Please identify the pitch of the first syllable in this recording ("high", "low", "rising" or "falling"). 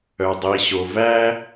low